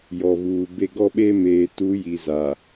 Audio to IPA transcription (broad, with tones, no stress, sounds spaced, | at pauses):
j ɔ˨ v uː˨ b e˦ ɡ ɔ˦ ɓ e˦ m eː˨ t u˨˦ j i˨ z a˨